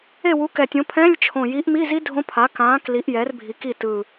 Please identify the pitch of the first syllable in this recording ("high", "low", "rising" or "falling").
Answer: falling